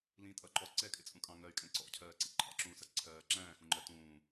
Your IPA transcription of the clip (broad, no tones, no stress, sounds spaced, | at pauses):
l ĩ tʼ ʌ ǃ ɔ ǀ ɛ kʼ ɪ t͡sʼ ũ kʼ ɑ̃ ŋ ɜ y̯ kʼ ɛ̃ ǀ ɔ̰ cʰ ɜː ǀ ḭ ǃʰ ɑ̰ ǁ ũː s ʌ ǀʰ ɜː ǁ æ̃ː x ũ ŋ͡ǃ ɜ t ũː